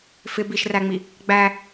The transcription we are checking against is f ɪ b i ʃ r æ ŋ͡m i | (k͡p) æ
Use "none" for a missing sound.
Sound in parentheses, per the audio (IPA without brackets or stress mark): ɡ͡b